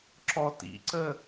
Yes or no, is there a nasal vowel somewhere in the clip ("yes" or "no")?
no